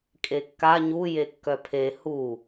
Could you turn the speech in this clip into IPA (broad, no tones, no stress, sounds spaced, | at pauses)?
kʼ e kː a ɲ u j e kː œ pʰ e h u